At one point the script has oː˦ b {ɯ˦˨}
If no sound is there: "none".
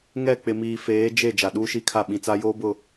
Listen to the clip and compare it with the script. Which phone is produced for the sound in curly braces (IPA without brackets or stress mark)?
ʊ˦˨